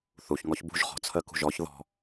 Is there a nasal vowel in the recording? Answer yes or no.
no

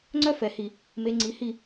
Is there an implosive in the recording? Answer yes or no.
no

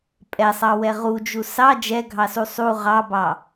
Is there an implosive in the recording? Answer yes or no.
no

